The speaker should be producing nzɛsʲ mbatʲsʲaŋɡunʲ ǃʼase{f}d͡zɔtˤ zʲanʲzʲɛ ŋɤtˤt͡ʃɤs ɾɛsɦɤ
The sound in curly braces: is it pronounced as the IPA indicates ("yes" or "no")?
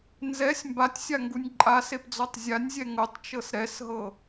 no